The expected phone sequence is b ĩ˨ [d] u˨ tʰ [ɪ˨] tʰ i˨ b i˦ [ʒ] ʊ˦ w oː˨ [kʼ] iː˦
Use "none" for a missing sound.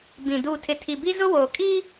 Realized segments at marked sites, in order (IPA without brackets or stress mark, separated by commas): d, ɪ˨, z, kʼ